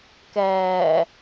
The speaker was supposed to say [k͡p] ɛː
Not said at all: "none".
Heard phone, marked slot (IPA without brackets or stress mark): k